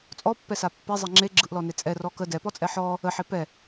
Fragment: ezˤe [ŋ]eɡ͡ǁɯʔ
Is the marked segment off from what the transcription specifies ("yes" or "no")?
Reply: yes